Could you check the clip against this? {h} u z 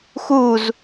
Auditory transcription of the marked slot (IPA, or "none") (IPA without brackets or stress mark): x